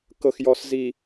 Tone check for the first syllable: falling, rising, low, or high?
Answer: low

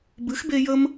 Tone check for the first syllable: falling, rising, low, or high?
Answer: rising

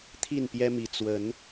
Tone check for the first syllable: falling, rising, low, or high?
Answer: falling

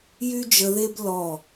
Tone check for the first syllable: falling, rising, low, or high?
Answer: high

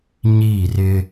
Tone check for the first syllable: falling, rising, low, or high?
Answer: falling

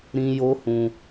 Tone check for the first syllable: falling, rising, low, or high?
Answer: high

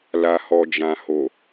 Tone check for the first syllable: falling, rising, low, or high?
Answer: low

